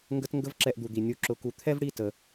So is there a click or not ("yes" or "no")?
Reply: yes